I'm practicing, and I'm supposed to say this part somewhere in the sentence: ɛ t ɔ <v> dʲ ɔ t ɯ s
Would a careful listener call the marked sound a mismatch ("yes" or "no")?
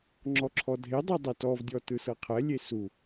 no